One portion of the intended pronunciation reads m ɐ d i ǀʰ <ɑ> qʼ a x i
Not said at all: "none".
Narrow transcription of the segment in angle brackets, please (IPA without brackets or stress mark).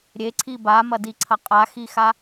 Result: ɐ